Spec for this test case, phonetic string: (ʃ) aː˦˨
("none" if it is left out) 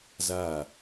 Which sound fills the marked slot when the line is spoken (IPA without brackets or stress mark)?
z